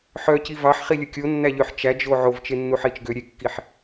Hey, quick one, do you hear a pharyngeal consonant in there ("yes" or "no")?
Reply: yes